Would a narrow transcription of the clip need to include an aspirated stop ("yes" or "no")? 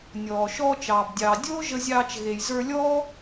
no